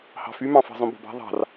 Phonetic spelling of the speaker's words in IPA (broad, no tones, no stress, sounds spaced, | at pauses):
h ɑ̤ f y m ɑ̃ f ɑ̤ zˤ õ b o̤ b ɑ̤ ðˤ ɑ̤ r